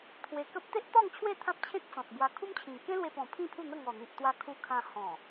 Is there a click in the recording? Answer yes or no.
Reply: no